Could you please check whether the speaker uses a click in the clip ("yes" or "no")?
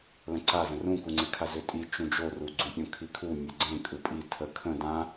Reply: yes